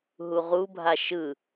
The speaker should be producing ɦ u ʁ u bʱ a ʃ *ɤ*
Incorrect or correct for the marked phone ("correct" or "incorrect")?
incorrect